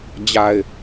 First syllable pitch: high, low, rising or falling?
low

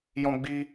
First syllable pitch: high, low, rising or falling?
high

